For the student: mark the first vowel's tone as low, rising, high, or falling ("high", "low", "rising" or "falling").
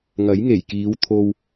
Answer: rising